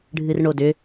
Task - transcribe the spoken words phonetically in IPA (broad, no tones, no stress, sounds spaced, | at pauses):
ɖʱ ɨ r ɳ o d ʏ